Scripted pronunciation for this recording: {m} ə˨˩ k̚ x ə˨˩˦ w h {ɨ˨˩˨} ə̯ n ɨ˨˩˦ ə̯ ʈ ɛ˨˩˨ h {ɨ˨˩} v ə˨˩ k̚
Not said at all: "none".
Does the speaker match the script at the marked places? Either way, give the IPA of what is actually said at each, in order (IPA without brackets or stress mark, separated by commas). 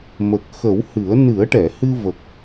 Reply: m, ɨ˨˩˦, ɨ˧